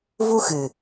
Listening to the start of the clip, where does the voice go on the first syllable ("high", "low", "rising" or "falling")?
high